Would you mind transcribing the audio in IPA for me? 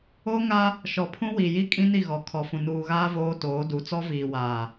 o˦ ŋ a˦ | ʃ ɔ˨ pʰ ũ˦ w i˨ j i˦ kʼ ĩ˦ n i˦˨ ɣ ɔ˨ kʰ ɔ˨ f ũ˨ n uː˨ ɣ aː˦ v oː˦ t oː˨˦ d u˨˦ t͡s ɔ˦ v iː˨ w aː˨

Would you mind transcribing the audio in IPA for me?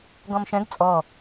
ɡ ɔ̃ m ʃ ɛ̃ ɡ t͡sʼ ɔ

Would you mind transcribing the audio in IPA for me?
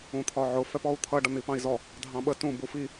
ũ t̪ʰ ɒ ʕ ʊ f ɛ p ɔ u̯ t̪ʰ ʌ ɖ ʌ n̪ i p ɑ̃ i̯ z ɔ | dʱ ɑ̃ ɓ ə t ũ b u f i

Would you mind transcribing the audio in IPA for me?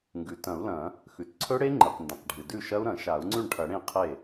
ŋ ɡ ʉ˩ t ɐ̃˨˩˦ u̯ l ɐ̃˨˩˦ | x ʉ˩ t ǀʰ ɵ˦˥ ɽ e˦˥ ŋ͡ǃ ɨ˩ q n d ɐ̃˩ q ɖʱ ɨ˩ d ʉ˥˩ ʃ ɐ˦˥ u̯ ɾ ɐ̃˨˩˦ ʃ a˨˩˦ u̯ ŋ͡ǀ ʉ˥˩ ɳ ʈʰ ɐ˨˩˦ ɽ ẽ˥˩ qʰ e˥˩

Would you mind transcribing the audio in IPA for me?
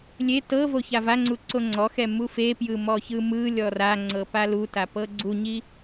lʲ e t ɤ v o ç a v a ŋ͡ǀ u ǀ o ŋ͡ǀ ɔ x ɛ m u f e p j ɯ m ɔ ç ɯ m ɯ lʲ ɔ r a ŋ͡ǀ ɤ p a l u t a p ɤ ɡ͡ǀ u ɲ i

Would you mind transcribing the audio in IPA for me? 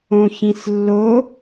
õ ç ĩ s lː o

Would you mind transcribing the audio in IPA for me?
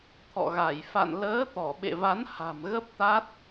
t̪ʰ ɔ̰˧˨ ɣ a˧˩ j f a̰˧˨ n l əː˨˦ t̪ ɔ˧˩ ɓ ḛ˧˨ v a˨˦ n h a̤˨˩ m ɣ ə˦˥ p̚ t̪ a˦˥ t̚

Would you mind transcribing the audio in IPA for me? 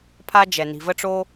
pʰ a˧ d͡ʒ ɛ˩ n i̤˩ v ə˧ ʈ͡ʂ o˧

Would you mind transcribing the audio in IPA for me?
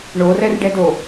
ɳ o r ɛ r ɖ ɛ d o

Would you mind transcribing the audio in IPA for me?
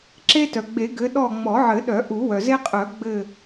ǁ e˦ t œ˩ ɡ͡b e˨˩˦ ɡ ɘ˨˦ ɗ ɔ˦˨ ŋ͡m ɔ˨˩˦ ʕ ɘ˨˩˦ ɗ œ˨˩˦ ʔ u˨˩˦ w œ˩ z e˦ qʼ œ˨˩˦ ɡ͡b ɘ˦˨

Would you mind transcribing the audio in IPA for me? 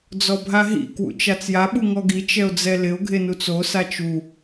d͡z ɔ bʱ a ɦ ḭ k w ṵ t͡ʃ a t͡s j a ɓ u ŋ ɔ ɡ i t͡ʃ ɛ o̯ d͡z ɛ l ɪ o̯ ɡʱ e n u t͡s o s a t͡ʃ u

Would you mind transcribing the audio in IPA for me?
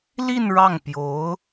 l i˥˧ n ɻ ɑ˥˩ ŋ p j o˧˥ ʊ̯

